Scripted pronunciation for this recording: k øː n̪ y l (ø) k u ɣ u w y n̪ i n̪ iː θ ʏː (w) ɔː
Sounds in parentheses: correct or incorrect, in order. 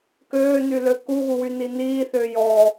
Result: correct, incorrect

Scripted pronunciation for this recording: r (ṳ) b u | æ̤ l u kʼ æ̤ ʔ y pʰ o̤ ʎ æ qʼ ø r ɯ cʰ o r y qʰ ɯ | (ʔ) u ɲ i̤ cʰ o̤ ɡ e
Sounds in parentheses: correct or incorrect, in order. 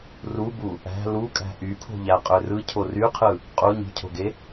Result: incorrect, incorrect

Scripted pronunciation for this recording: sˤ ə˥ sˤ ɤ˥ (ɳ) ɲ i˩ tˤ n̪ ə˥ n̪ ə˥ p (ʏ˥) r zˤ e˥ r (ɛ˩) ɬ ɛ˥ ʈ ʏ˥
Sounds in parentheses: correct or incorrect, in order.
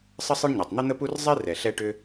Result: correct, incorrect, correct

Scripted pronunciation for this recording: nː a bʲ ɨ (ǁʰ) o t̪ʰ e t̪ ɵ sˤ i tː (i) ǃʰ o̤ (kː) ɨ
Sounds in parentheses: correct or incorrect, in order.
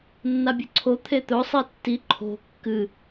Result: incorrect, correct, correct

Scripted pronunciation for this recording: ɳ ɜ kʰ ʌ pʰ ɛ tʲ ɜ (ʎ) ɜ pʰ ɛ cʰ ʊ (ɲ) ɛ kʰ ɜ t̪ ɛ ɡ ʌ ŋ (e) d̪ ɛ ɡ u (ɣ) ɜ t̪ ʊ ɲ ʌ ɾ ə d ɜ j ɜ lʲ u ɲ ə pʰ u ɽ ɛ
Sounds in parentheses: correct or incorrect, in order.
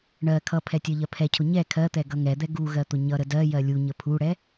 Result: correct, correct, incorrect, correct

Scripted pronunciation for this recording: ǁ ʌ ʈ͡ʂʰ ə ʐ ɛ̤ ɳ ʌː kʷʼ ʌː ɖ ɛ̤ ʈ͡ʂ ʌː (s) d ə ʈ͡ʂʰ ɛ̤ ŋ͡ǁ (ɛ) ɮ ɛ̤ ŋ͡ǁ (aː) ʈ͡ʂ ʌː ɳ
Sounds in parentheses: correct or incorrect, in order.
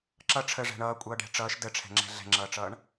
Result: incorrect, incorrect, incorrect

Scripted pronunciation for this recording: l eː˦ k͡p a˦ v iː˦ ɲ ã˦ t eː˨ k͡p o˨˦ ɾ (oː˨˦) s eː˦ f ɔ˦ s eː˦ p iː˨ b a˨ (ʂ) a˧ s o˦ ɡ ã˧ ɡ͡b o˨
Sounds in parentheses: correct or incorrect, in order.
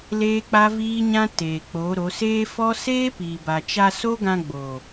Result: incorrect, incorrect

